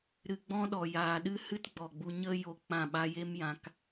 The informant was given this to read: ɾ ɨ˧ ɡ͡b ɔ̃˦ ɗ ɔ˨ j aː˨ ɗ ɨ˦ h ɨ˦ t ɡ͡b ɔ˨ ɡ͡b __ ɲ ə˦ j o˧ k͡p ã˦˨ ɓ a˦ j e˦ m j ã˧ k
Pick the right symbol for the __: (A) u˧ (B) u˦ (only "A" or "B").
A